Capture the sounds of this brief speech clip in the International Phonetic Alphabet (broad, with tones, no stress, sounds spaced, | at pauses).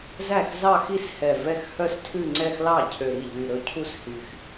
z æ˥˩ x z ɑ˥˧ x i˥˩ s h ɛ˨˩ v ɛ˥˧ x h œ˥˧ s tʰ ʉ˥˧ ŋ͡ǀ ɛ˥˧ x l ɑ˥˩ cʰ ø˨˩ ɾ i˥˩ ʎ y˨˩ ɾ ɵ˥˩ cʰ u˥˩ s h y˨˩ x